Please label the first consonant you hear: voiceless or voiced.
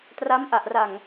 voiceless